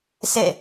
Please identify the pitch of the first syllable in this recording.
falling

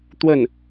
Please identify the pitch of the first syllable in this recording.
falling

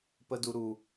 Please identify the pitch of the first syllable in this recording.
high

